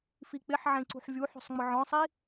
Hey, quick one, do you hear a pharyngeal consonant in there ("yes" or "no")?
yes